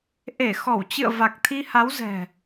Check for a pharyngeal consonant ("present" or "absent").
absent